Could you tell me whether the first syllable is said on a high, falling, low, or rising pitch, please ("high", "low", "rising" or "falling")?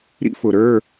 high